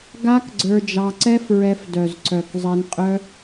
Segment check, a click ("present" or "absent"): present